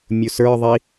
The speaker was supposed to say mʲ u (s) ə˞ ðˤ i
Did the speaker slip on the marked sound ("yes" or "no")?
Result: no